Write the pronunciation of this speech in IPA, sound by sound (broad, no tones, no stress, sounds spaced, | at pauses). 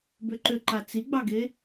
b ʏ ǃ ʏ ǃ a t͡s i ɡ͡b ɑ ɡ e